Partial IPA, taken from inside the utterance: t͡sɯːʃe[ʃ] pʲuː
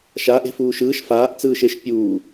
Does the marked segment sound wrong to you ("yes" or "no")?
no